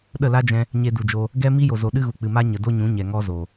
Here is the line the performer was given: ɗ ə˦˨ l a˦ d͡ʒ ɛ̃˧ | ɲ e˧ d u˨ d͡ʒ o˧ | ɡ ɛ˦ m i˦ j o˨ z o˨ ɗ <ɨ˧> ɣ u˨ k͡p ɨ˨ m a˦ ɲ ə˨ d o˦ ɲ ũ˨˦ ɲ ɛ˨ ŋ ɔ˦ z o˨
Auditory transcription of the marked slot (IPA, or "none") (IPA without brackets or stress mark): ɨ˦